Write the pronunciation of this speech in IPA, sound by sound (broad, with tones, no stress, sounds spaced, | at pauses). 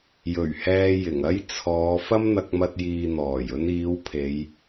j ɵ˨˩ ɥ h ɛː˧ j ɪ˨˩ ŋ ɐ˥ j t͡sʰ ɔː˨˧ f ɐ˥ m n̪ ɐ˧ k̚ m ɐ˧ t̚ j iː˨ n̪ ɔː˨˩ j ɵ˧ n iː˨˧ w pʰ e˨˧ j